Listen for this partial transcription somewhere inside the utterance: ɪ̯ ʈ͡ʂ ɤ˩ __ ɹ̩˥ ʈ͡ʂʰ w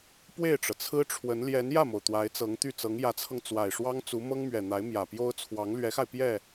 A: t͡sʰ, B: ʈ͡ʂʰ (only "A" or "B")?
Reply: A